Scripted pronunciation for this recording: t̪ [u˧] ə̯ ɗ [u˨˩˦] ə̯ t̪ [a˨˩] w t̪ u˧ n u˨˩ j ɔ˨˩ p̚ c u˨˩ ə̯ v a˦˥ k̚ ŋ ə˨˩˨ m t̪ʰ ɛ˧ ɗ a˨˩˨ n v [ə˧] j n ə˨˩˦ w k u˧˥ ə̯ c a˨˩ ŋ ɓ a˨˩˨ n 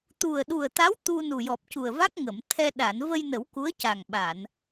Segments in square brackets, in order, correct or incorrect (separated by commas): incorrect, incorrect, incorrect, correct